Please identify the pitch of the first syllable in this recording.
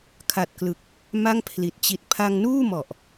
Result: low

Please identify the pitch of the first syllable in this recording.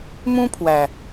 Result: high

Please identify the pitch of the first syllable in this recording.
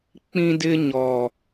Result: high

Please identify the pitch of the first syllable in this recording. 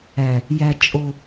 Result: low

